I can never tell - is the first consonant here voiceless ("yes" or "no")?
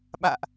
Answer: no